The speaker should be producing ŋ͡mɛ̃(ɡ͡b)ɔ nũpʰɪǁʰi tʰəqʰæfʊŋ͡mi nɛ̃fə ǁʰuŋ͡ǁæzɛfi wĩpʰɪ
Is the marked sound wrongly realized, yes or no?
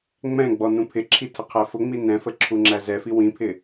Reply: no